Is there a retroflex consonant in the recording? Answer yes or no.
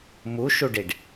yes